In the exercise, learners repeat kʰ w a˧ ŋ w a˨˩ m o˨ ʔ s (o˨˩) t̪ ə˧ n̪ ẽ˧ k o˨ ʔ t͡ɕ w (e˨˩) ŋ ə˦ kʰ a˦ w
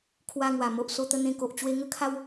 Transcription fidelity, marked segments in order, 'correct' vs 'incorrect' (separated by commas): incorrect, incorrect